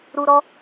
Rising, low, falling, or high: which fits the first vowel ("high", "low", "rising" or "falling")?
low